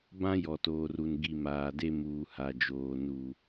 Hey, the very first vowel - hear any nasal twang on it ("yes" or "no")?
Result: yes